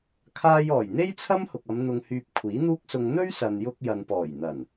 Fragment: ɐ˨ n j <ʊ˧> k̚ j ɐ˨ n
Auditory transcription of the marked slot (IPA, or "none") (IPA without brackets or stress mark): ʊ˧